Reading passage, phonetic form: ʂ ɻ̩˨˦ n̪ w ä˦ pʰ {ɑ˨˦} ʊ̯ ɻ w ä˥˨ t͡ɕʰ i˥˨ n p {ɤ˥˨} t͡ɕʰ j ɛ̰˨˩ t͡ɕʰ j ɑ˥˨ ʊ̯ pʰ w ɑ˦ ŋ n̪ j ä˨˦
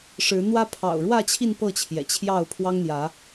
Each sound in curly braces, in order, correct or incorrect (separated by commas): incorrect, correct